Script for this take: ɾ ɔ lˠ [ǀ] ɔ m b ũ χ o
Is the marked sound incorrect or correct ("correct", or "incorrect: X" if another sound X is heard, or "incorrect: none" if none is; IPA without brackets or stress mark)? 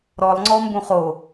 incorrect: ŋ͡ǀ